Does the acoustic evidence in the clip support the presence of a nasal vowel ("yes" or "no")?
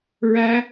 no